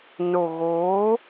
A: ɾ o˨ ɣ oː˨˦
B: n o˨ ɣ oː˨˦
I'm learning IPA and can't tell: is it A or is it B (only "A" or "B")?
B